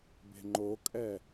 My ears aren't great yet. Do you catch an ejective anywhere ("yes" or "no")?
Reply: yes